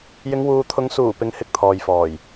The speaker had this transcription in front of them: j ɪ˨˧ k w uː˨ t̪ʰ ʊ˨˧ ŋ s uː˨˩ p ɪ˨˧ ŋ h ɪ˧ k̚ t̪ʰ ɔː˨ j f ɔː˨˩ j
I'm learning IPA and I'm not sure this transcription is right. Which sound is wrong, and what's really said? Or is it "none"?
k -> ŋ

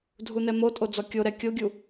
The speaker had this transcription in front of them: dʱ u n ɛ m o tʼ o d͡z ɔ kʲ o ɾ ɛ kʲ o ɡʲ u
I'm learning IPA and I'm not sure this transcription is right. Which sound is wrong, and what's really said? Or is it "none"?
none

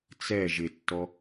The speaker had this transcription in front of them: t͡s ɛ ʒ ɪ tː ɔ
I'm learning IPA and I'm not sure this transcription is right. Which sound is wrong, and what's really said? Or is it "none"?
none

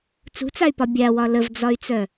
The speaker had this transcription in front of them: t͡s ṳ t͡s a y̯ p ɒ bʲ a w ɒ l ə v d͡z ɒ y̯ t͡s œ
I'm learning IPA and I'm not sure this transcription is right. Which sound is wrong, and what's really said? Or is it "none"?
none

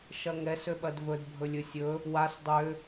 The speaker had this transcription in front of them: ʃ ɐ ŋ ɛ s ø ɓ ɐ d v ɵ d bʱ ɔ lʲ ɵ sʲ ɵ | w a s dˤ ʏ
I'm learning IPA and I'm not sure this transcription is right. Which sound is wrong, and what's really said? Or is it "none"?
ɔ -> ɵ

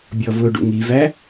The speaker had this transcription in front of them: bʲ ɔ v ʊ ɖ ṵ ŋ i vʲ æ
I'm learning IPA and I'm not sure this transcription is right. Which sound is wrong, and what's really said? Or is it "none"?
vʲ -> v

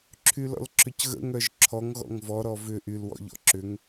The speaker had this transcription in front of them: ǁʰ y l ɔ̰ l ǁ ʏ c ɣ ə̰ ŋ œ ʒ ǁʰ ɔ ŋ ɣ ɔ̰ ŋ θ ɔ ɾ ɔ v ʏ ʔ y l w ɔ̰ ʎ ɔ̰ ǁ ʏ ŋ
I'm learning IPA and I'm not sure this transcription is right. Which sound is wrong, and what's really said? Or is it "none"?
θ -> v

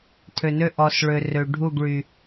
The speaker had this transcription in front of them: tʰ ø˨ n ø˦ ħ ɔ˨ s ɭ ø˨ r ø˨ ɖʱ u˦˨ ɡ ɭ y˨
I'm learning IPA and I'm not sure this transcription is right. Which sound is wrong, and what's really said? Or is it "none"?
ħ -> ʔ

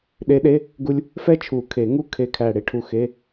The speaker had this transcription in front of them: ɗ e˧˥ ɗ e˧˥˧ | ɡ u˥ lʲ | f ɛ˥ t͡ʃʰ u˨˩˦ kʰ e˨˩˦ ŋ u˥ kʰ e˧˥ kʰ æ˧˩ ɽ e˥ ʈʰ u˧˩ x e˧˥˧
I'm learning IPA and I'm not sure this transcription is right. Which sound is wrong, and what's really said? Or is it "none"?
none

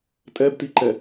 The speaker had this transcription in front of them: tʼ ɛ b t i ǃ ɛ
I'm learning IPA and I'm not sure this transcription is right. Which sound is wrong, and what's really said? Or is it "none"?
none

